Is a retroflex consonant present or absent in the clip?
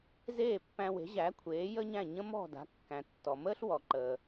absent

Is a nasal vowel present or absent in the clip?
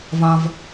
present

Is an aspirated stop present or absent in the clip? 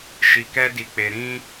absent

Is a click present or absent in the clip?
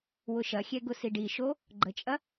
present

